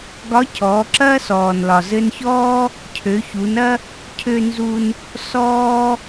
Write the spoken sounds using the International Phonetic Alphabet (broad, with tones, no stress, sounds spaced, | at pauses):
ɡ ɒ˧˥ cʰ ɔː˩˧ ǁ ɐː˥ s ɔː˩ n l ɒ˩ z ɘ˧ n ç ɔː˥ | cʰ ø˩˧ ç u˩˧ n ɐ˥ | cʰ ø˧ n z u˧ n | s ɔː˥